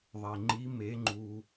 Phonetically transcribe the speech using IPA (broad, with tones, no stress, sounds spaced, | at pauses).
ðˤ e˩ ŋ͡ǃ i˧˥ m e˧˥ ŋ͡ǃ u˧